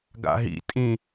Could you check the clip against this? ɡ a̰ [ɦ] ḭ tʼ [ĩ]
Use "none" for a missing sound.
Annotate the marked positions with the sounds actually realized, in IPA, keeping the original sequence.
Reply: ɦ, ĩ

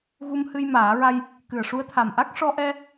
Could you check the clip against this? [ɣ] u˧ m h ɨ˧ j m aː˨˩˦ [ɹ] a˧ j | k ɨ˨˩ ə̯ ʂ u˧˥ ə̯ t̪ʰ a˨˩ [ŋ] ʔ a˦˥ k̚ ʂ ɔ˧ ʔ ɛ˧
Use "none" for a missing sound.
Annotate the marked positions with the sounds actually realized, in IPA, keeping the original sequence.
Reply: ɣ, ɹ, m

